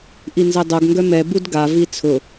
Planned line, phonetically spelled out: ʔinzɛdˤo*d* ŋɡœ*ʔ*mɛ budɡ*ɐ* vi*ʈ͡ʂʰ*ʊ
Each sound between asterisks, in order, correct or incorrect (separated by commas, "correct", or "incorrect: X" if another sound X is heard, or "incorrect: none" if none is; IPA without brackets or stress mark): incorrect: ɡ, incorrect: none, incorrect: a, incorrect: t͡sʰ